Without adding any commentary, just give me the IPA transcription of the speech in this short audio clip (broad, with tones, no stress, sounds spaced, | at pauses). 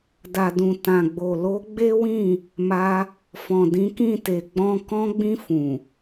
d a˨ d ũ˨ t ã˨ ɡ͡b o˨ l o˨˦ ɡ͡b e˦ w ĩ˦˨ | m a˧ | f ɔ̃˨ d ĩ˨˦ k ĩ˦˨ t e˨ ɡ͡b ɔ̃˧ k ɔ̃˧ ɡ͡b ĩ˧ f ũ˨